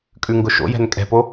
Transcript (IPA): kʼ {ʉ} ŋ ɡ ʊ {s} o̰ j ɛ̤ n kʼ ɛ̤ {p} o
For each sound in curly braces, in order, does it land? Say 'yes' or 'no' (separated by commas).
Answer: yes, no, yes